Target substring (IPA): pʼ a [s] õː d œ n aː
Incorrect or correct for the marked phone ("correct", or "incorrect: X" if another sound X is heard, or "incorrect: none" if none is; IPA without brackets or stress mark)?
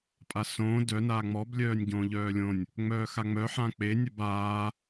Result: correct